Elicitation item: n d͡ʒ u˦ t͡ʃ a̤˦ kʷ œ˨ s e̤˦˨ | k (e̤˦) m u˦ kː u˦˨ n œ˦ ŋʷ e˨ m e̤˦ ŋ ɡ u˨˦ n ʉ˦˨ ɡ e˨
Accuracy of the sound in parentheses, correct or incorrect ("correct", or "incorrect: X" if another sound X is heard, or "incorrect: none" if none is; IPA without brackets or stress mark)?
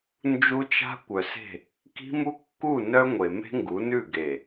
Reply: incorrect: i̤˦